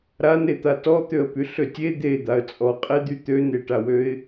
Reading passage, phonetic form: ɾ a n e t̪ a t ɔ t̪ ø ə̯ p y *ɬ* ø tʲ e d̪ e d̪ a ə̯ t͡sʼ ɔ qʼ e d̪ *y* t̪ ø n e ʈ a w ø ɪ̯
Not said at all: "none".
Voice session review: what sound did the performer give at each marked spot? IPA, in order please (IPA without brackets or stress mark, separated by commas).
ɬ, y